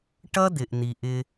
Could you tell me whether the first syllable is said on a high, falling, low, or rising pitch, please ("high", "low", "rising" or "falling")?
high